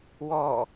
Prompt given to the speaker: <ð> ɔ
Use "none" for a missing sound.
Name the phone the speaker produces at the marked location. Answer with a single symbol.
w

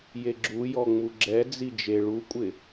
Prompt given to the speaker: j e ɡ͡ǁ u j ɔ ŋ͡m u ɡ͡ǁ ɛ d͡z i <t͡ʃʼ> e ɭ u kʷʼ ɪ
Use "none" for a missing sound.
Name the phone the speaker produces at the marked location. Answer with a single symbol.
d͡ʒ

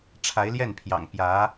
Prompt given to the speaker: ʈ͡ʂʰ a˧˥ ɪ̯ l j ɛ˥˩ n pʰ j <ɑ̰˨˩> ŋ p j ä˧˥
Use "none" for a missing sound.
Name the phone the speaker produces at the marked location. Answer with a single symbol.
ɑ̰˨˩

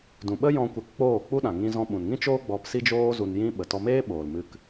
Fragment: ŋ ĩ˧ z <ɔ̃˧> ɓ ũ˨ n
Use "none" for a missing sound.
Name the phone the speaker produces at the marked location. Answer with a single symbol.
ɔ̃˧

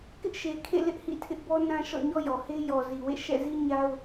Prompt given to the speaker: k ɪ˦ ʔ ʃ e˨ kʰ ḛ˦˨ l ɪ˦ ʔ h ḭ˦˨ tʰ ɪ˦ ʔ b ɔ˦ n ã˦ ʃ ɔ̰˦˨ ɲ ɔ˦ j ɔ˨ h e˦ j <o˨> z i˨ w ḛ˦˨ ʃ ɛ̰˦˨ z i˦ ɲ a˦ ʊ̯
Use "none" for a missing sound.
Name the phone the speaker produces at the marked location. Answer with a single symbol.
ɔ˨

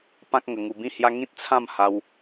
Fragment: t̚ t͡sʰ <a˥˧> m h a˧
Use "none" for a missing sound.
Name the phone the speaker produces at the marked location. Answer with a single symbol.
ã˥˧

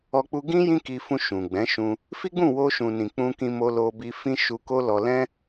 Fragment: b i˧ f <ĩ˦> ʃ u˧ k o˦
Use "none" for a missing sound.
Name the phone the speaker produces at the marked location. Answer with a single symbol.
ĩ˦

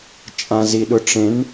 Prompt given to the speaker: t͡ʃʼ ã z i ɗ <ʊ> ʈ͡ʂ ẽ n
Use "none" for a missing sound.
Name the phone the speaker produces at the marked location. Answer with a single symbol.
ʊ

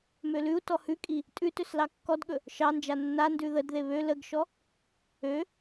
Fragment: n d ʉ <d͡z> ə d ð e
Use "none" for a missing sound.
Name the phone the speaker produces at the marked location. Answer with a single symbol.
ð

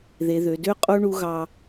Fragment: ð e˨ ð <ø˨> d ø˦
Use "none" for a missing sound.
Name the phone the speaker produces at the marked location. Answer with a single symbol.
ø˨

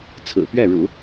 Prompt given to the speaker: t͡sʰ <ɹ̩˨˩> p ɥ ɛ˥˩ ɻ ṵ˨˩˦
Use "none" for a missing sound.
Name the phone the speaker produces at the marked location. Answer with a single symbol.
ɹ̩˨˩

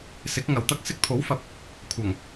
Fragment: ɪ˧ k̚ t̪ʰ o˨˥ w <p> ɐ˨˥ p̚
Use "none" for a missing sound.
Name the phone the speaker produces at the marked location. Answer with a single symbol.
f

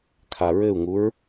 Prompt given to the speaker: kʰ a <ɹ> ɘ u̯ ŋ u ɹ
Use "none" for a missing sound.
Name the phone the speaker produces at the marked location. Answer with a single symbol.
ɹ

